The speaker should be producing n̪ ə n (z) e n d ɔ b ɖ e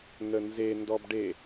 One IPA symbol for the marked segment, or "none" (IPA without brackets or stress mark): z